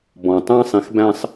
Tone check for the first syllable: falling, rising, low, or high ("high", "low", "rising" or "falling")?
low